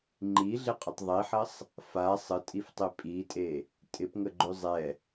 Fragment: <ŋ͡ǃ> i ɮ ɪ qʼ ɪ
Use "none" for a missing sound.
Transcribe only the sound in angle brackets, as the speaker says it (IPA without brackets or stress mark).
ŋ͡ǃ